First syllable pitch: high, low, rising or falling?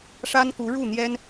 high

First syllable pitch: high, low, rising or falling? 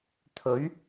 rising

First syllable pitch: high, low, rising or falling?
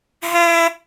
high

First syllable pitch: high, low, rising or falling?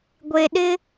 low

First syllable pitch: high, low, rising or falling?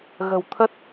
low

